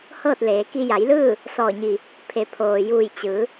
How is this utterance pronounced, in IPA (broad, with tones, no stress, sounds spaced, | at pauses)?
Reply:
h ɤː˥˨ t̚ l eː˩˧ k i˧ j a˩˧ j l ɯː˥˨ | s ɔː˧˩ ɲ i˧˩ | pʰ e˩˧ pʰ oː˩ j uː˧˩ j t͡ɕ ɯː˩˧